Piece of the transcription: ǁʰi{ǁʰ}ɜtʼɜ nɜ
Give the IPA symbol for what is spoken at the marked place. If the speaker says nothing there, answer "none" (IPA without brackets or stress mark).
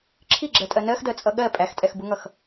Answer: ɡ͡ǁ